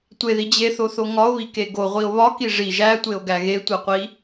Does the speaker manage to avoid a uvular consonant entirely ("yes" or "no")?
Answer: no